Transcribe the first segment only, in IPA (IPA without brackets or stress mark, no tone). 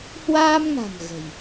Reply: h